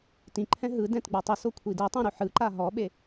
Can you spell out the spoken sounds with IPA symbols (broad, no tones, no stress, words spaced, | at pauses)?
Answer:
tĩǃʰɛ̃ ɦɯ dɛ̃tɡ͡batˤiso kʷʰidɛtˤɛ̃ ɾuħɯǃa ɦɔɓe